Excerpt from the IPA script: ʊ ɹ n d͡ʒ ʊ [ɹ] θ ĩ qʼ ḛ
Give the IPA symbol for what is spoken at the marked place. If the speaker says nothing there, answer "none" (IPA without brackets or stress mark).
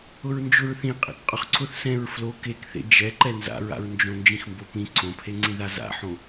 ɹ